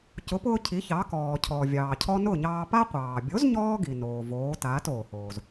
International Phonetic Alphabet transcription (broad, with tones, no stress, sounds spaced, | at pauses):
c ʊ˩˥ p ʊː˧ cʰ i˩˥ ç ɑ˩˥ k ɔː˩ cʰ ɔ˩ vʲ ɑː˩ cʰ ɔ˧ n ʊ˥˩ ɲ ɑː˧ p a˥ qʷ ɑː˩ bʲ o˩˥ z ɲ ɔː˧ ɡ i˩ n oː˩ v oː˩˥ t aː˩˥ t oː˩ h oː˩ z